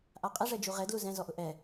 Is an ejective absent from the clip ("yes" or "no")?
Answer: no